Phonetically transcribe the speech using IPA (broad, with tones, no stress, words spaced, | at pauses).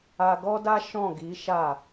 a˧ɡɔ˦da˦ ʃɔ̃˦˨ɡi˨˦ ʃa˦˨